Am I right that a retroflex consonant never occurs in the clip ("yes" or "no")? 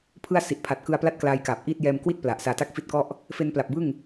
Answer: yes